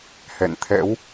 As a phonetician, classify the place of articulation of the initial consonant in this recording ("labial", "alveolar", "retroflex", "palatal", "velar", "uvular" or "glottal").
glottal